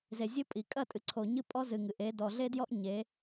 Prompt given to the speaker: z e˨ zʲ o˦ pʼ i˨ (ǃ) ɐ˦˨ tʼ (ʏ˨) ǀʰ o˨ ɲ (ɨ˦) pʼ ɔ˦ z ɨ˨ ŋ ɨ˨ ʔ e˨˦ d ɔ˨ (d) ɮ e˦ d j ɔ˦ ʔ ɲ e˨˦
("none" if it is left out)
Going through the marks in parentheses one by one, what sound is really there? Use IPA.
kʼ, ɨ˨, ɨ˦, none

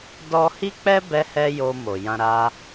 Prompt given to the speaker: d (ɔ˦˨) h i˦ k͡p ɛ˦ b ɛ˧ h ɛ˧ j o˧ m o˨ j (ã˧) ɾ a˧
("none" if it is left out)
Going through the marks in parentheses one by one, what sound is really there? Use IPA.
ɔ˦, ã˧

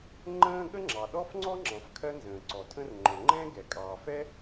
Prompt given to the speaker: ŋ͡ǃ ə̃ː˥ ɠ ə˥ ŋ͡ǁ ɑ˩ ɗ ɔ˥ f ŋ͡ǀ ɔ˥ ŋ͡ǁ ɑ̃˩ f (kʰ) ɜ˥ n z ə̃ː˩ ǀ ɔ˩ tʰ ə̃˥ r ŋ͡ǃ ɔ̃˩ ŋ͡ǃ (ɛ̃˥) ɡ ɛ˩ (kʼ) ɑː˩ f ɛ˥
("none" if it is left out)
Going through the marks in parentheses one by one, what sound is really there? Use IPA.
kʰ, ɛ̃˥, kʼ

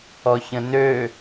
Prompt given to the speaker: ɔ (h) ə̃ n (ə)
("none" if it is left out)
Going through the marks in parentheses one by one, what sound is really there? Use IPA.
ç, ø

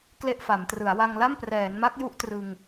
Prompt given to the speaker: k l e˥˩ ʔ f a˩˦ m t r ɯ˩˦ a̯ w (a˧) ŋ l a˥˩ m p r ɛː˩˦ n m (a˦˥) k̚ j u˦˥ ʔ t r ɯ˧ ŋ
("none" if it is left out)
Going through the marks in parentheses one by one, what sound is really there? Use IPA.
a˧, a˦˥

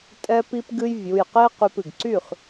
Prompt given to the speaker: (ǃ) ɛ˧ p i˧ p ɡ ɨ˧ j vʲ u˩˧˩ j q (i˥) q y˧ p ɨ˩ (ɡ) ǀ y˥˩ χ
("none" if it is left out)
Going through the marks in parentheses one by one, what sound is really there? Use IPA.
tʼ, e˥, ɡ

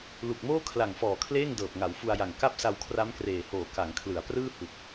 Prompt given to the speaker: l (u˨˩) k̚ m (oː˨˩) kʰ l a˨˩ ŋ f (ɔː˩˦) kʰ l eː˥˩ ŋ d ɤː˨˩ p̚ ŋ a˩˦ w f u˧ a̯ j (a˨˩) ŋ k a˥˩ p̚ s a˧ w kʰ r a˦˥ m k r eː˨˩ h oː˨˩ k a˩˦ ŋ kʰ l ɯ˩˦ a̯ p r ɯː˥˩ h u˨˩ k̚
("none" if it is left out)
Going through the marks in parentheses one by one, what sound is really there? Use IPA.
u˨˩, oː˥˩, ɔː˨˩, a˨˩

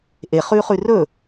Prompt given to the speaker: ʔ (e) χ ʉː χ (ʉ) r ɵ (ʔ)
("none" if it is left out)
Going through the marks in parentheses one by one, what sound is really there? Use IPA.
e, ʉ, none

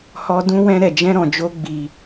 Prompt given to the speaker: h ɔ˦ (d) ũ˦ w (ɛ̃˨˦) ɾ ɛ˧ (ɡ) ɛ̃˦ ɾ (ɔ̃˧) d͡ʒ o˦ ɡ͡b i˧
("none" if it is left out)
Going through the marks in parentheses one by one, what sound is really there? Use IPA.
d, ɛ̃˦, d͡ʒ, ɔ̃˧

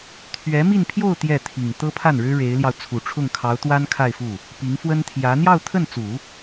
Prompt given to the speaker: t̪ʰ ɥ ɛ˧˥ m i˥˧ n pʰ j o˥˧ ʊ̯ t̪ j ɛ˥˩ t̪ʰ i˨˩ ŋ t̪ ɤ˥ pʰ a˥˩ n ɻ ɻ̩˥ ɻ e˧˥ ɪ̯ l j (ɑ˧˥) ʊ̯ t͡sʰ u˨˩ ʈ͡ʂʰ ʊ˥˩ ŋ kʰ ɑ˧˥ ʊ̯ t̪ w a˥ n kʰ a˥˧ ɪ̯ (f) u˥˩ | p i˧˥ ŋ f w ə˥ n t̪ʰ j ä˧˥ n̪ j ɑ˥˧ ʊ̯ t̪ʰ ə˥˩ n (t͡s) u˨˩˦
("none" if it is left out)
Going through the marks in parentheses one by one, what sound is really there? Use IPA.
ɑ˧, f, t͡s

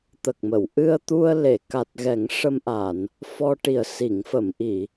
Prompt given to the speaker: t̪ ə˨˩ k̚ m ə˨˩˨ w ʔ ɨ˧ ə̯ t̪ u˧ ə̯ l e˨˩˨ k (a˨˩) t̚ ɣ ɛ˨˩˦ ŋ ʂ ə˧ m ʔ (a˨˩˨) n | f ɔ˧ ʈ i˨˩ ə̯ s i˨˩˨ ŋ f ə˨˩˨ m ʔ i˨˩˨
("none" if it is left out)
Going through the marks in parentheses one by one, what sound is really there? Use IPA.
a˨˩, a˨˩˨

